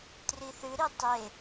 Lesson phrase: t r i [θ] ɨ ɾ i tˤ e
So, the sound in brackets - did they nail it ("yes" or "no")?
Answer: yes